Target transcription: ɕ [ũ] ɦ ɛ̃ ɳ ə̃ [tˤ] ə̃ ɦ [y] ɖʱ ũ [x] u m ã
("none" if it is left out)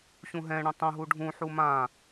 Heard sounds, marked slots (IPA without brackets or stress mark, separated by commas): ũ, tˤ, u, ħ